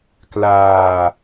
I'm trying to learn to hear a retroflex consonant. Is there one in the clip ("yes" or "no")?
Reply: no